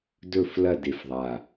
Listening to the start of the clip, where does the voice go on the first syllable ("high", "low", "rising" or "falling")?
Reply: falling